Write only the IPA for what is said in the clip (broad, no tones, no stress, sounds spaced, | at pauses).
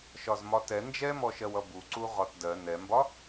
ʃ ɒ z m ɒ t ɛ n d͡ʒ ɛ m ɔ ʃ ɜ w ʌ b u ǀ u ʁ ɒ t d ɜ n ɛ m b ɒ